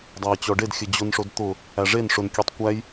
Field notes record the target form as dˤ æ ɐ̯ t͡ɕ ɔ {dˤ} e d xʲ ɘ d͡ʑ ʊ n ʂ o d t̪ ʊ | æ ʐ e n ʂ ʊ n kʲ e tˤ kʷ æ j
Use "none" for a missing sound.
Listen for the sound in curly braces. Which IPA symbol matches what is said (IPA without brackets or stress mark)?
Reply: ɖ